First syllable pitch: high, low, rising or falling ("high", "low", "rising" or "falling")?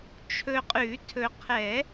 low